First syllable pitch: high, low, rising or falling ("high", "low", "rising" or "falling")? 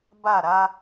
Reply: falling